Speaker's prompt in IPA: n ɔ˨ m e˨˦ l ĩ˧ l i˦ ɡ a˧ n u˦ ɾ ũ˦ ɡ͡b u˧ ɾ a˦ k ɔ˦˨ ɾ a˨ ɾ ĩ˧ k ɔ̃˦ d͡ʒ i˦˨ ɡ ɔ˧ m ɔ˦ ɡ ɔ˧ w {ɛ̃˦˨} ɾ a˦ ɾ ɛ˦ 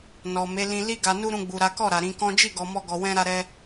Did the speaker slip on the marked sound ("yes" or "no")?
yes